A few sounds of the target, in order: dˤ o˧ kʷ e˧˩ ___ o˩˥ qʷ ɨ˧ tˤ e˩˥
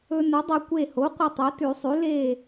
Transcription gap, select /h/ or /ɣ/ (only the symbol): h